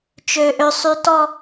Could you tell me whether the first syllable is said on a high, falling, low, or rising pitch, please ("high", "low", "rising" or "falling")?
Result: high